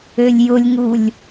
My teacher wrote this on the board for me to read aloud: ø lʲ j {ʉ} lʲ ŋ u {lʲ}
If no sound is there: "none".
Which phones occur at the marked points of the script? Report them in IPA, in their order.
ʊ, lʲ

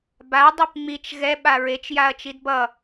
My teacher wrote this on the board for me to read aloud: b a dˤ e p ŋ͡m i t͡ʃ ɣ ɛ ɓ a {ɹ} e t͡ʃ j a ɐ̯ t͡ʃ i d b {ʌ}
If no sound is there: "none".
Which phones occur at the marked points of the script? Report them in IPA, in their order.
ɹ, ʌ

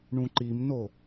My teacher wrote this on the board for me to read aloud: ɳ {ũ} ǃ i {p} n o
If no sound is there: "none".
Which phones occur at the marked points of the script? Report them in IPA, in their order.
ũ, m

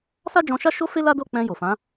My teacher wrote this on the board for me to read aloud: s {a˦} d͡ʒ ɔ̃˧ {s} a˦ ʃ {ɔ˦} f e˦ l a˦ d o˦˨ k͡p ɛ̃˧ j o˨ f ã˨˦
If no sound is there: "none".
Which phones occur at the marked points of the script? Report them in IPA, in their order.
a˦, ʃ, o˦

